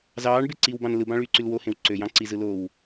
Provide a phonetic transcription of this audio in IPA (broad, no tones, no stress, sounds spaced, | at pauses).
z ɑː ɳ b e ǀ i w b ɑ̃ n l ɯ b ɑ̃ ɭ yː ǀ y l w o h ẽ w ǀ ø j ɑ̃ ǀ i z ɯ l o w